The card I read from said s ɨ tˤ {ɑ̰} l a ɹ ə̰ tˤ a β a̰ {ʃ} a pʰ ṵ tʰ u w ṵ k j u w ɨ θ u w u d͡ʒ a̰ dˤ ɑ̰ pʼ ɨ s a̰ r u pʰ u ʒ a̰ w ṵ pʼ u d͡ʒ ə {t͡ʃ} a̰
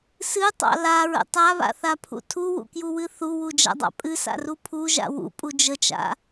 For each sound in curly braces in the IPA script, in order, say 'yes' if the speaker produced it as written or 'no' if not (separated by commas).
yes, no, yes